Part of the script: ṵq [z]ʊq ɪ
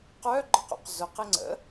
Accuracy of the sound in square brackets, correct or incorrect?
correct